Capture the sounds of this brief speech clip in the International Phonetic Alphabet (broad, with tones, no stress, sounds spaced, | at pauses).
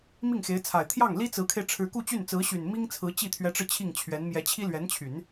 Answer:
m i˥˩ ŋ x e˧˥ ɪ̯ t͡sʰ a˨˩ ɪ̯ t̪ʰ j ɑ˥˩ ŋ l i˥ t͡s ɹ̩˧˥ kʰ e˧ ɪ̯ ʈ͡ʂʰ ɻ̩˧˥ k u˥˧ t͡ɕ y˥˩ n t͡s ɹ̩˧˥ ɕ y˨˩ n m i˥ ŋ t͡sʰ ɹ̩˧˥ t͡ɕ i˥˩ t̪ʰ ɥ ɛ˧˥ ʈ͡ʂ ɻ̩˧ t͡ɕʰ i˥˩ ŋ t͡ɕʰ ɥ ɛ˧˥ n m j ɛ˧˥ t͡ɕʰ i˥ l ɥ ɛ˧˥ n t͡ɕʰ y˨˩˦ n